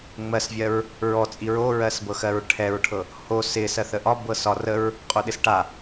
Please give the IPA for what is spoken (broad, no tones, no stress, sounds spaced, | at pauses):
ŋ͡m ɜ s vʲ ɜ ɹ | ɹ ɔ t͡sʼ i ɹ o ɹ ɜ s b ɤ x ɜ ɹ ʈʰ ɛ ɹ ʈʰ ɤ | h o s ɪ s ɜ θ ə ʔ ɒ b ɤ s ɒ r ə ɹ | qʼ o ɗ ɪ s ʈ a